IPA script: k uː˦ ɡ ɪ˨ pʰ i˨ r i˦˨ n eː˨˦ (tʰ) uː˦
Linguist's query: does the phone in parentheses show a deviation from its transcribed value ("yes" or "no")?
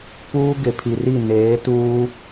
yes